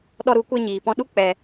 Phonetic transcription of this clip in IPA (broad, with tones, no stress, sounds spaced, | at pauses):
ɗ ɔ˧ ɾ u˨˦ kʷ e˧ ɲ iː˨ p ɔ̃˧ ɗ u˦ k͡p ɛ˧